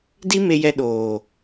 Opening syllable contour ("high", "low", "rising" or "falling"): high